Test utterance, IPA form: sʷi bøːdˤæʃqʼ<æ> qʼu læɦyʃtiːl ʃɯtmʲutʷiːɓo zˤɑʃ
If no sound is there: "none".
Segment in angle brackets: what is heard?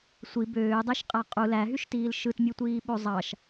æ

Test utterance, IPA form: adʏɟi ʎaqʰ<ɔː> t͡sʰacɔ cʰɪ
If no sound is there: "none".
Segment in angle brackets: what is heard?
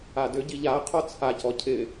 ɔ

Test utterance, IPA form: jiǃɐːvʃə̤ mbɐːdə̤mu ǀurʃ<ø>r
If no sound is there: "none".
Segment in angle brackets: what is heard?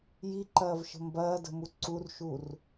u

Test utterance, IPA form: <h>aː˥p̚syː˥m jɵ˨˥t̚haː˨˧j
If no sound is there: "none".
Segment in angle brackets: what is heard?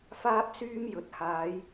f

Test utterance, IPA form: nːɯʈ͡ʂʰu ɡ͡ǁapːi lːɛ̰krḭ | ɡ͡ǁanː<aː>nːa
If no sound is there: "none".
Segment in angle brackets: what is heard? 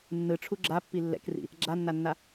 a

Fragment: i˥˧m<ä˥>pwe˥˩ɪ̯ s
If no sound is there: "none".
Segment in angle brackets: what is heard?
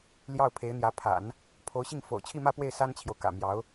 ä˥˧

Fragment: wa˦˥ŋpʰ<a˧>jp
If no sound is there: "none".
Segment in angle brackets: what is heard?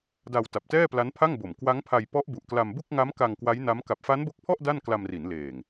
a˧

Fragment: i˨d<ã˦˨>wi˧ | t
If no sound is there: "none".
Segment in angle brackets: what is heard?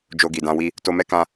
ã˧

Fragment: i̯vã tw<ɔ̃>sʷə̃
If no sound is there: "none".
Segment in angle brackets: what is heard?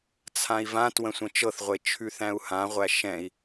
ə̃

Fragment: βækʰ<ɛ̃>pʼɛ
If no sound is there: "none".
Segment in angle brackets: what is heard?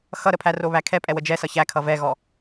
ɛ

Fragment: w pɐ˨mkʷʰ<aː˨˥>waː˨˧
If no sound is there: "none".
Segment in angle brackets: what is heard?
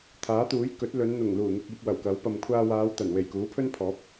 aː˧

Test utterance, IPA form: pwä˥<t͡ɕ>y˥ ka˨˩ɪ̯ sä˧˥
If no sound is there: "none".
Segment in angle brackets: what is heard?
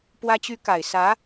t͡ɕ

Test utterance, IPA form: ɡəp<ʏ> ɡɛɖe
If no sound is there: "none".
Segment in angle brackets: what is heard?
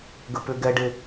ʏ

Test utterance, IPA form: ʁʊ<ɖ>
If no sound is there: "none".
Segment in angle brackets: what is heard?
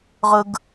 ɡ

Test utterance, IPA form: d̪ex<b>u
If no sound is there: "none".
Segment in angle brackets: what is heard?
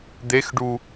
ɖ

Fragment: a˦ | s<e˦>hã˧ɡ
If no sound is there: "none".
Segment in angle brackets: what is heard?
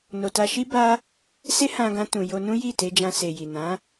e˦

